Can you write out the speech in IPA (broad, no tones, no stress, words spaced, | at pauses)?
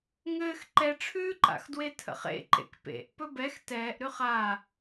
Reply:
ŋɘːx ǃɛʈ͡ʂʰʉːǃa̰xdwe tʰə̰χḛ ǃḛkpḛʔ pɵbɛx tɛːʔɾʉχ a